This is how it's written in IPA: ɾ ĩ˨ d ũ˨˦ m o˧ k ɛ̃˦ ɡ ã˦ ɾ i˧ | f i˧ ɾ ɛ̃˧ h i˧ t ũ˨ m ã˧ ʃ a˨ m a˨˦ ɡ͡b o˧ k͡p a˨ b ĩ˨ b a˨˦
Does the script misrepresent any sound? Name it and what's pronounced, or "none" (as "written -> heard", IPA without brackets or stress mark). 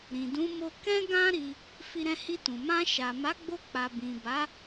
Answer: none